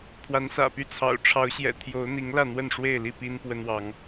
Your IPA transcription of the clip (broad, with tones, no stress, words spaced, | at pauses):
pʰwa˨˦nsä̰˨˩py˥˨t͡sʰɑ̰˨˩ʊ̯ ʈ͡ʂʰɑ˨˦ʊ̯ɕjɛ̰˨˩t̪ʰjo˨˦ʊ̯n̪i˨˦ŋ lä˥˨n̪wə˥˨nʂwe˥˨ɪ̯li˥˨ pi˦npwə˦nwɑ˨˦ŋ